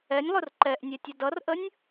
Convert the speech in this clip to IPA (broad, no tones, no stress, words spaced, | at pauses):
ɛnʲlˠʊr ǃɛʔnʲɛtʲʌ dʌrʔənʲ